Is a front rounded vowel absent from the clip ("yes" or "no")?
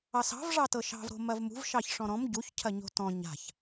yes